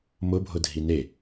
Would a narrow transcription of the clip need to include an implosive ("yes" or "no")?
no